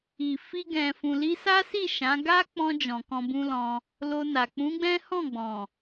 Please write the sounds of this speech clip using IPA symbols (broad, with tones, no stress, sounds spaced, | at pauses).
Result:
i˨ f i˧ ɡ ɛ̃˨ f ũ˨ l i˧ s a˦ s i˦˨ ʃ ã˨˦ ɡ a˦ k͡p ɔ̃˧ d͡ʒ ɔ̃˨ k ɔ̃˧ b ũ˦ l ɔ̃˧ | l o˧ n a˨ k͡p ũ˨˦ ɡ͡b ɛ̃˦ h ɔ̃˦˨ ɡ͡b ɔ̃˨